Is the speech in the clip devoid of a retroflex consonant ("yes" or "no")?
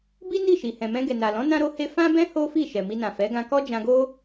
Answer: yes